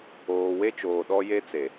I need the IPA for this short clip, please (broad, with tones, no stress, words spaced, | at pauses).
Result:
oː˨we˦t͡ʃoː˨ ɗɔ˦je˦t͡se˨